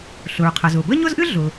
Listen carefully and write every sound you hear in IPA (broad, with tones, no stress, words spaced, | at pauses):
ɬʊ˩ɹqʰɤ˩zʊ˩ bə˥ɲʊ˥zʔɨ˥ ɮʊ˩